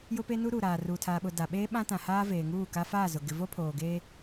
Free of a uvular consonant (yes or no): yes